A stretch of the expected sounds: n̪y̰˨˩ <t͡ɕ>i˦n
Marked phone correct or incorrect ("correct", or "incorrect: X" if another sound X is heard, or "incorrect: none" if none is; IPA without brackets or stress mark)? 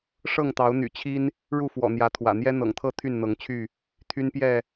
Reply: incorrect: t͡ɕʰ